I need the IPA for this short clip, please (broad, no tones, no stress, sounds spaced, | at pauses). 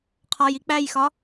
qʰ ɒ j i k͡p æ j x ɒ